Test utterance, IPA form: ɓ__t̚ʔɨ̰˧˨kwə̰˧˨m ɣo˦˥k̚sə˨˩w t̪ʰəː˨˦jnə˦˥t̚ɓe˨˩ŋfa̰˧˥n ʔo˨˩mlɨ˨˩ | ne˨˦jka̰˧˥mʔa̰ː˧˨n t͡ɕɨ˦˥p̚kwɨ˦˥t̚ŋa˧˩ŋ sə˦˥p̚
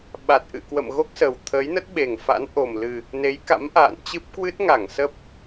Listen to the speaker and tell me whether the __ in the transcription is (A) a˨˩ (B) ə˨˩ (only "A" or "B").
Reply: A